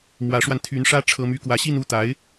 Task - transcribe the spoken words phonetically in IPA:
mwä˧˥ʂwa˧n t̪ʰy˧˥nʂä˥ ʈ͡ʂʰɤ˥my˥ kwä˧˥ɕi˥˧nu˥˩t̪a˧˥ɪ̯

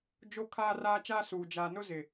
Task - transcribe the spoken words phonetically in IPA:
d͡ʒo˦kʰaː˦raː˦ t͡ʃaː˦suː˨ d͡ʒaː˨nʊ˦ zɪ˨

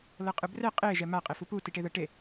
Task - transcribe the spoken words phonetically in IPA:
lɤqʼɯbrɛ qʼe ʒɛma qʼefupu tiʈeðɤʈe

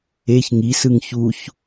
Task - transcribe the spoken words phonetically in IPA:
eç ŋisɯŋ çuç

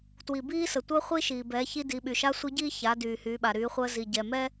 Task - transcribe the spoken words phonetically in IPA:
twi˩biː˥sə˩ tʷəː˥χʷi˥ʃiː˩ bɛː˩˧çi˧ di˩˧ɓy˩ʃa˧˥ sʷi˧˥ɟiː˥ ça˩˧ dyː˩hyː˩˧ɓa˩ ɾyː˩˧χʷəː˧zi˩ ɟɛ˩mɛ˥

